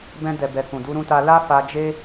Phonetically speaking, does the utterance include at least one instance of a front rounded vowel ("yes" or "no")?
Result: no